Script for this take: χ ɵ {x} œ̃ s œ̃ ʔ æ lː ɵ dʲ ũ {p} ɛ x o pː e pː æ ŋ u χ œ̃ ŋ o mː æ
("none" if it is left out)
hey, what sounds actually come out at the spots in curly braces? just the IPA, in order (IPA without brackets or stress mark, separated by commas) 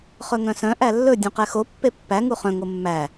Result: ŋ, q